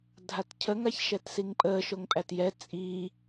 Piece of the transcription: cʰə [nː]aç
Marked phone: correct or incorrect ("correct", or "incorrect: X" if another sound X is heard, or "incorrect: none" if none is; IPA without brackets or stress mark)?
incorrect: ŋ